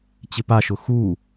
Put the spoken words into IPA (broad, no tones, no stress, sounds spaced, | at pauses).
t͡ɕ ɪ p a ʃ ʊ x u